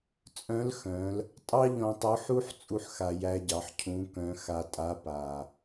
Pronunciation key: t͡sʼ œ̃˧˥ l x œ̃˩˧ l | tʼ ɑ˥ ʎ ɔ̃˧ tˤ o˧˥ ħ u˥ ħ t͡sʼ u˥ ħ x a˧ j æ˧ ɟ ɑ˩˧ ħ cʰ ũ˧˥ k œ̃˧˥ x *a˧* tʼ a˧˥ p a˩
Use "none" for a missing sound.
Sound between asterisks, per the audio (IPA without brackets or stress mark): a˧